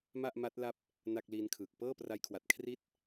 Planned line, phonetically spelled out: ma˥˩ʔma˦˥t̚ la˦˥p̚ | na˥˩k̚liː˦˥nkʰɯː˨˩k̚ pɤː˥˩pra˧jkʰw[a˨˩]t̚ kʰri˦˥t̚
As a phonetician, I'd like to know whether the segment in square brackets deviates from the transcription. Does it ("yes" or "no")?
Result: no